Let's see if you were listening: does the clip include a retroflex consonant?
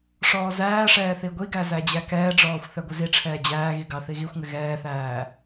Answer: yes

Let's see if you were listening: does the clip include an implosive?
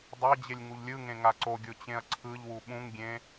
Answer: yes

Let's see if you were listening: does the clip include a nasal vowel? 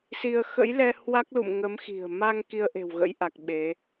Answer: no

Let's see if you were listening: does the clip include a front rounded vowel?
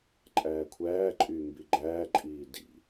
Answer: yes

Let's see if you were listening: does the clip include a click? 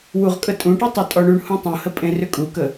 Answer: no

